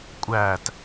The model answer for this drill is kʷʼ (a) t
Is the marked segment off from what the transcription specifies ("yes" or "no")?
yes